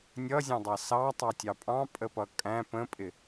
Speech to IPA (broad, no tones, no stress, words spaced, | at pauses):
nʲʌzʲɑ̃dˤɑ sɑtˤɑtʲɑ pʼɑ̃pʼəpʌ kʼæ̃ pə̃pʼɪ